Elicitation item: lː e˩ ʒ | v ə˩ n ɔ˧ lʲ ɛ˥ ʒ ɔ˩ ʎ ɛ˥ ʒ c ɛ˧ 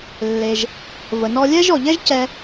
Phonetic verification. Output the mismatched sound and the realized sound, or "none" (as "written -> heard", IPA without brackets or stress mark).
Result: none